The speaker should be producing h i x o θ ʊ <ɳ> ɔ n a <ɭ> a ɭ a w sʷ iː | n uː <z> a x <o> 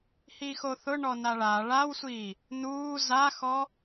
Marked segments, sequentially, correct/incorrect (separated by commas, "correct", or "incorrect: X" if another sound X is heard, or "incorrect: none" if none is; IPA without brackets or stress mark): correct, correct, correct, incorrect: ɔ